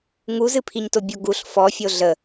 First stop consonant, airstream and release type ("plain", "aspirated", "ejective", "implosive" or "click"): aspirated